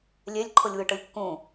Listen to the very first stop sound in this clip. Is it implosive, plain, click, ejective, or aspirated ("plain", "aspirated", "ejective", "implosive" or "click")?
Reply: click